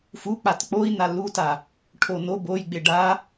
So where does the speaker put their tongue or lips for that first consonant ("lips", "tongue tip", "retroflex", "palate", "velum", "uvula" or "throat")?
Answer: lips